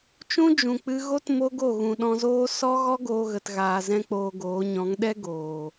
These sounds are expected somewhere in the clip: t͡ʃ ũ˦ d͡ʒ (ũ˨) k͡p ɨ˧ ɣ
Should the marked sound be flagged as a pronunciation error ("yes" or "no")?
no